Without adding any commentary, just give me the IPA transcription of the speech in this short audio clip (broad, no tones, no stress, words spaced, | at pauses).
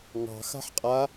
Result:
ŋɑ̤xa̤ħqʼa